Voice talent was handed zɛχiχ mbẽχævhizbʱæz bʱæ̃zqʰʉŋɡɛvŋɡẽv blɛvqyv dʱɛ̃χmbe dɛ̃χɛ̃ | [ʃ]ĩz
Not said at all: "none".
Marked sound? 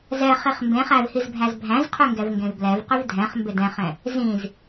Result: z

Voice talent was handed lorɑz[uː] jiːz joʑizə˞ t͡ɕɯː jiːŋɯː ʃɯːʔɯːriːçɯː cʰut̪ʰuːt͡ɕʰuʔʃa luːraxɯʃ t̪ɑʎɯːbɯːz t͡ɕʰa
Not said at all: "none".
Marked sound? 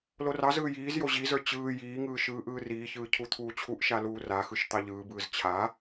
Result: ɯː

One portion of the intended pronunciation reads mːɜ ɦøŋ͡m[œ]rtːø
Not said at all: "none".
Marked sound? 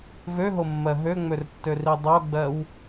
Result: ø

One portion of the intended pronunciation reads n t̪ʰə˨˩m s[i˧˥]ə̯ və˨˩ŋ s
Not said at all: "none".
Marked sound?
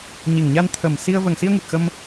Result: i˧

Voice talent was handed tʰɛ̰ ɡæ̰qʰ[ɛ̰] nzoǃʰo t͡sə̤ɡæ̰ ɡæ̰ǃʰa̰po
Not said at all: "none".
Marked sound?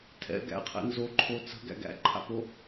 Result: ɛ̰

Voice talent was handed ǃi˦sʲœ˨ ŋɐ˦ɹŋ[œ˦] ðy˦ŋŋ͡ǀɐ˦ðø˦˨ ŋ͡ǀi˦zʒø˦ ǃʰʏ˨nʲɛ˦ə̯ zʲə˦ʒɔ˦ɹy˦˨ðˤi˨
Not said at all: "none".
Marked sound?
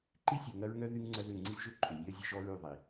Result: œ˦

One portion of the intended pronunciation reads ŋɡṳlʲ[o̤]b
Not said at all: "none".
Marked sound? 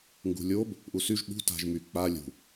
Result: o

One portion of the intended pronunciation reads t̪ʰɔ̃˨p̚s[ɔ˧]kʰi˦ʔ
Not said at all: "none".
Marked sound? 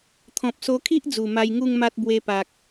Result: o˧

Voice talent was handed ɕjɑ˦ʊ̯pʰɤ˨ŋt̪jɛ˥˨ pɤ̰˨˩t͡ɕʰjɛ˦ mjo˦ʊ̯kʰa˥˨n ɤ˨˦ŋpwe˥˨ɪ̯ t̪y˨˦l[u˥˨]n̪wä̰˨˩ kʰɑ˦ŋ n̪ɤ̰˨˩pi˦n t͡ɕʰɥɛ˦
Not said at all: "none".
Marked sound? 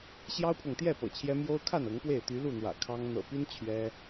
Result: u˥˨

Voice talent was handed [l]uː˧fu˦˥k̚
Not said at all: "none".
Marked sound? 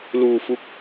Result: l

